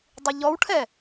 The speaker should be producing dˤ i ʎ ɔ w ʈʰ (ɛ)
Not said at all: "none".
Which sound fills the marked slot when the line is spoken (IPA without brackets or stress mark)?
ɛ